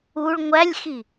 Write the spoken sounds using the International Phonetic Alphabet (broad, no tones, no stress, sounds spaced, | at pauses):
u ɭ ŋʷ æ lʲ x i